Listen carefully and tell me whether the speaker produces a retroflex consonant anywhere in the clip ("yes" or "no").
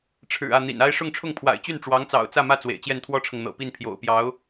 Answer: yes